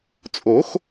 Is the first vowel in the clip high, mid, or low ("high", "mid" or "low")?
mid